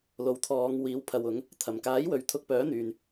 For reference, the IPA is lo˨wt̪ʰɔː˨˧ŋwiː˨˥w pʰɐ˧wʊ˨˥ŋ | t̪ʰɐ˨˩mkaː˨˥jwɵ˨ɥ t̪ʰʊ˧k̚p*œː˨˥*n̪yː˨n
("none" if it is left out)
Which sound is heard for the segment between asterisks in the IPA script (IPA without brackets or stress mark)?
œː˨˥